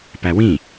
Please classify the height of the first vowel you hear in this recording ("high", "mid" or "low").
low